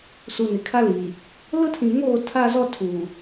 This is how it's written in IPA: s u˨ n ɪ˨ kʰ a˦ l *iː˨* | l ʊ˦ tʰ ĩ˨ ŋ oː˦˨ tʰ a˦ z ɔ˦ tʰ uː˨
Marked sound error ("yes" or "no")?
no